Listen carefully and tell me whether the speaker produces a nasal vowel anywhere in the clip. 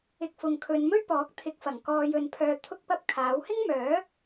no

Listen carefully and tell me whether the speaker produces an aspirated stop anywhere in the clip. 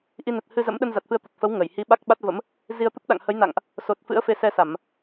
no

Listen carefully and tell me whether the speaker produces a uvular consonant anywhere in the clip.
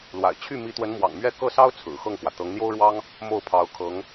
no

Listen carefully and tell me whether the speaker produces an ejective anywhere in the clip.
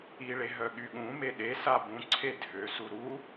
no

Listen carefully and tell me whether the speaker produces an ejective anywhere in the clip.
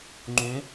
no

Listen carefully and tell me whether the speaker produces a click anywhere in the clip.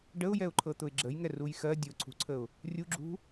yes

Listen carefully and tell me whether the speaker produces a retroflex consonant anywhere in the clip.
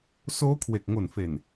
no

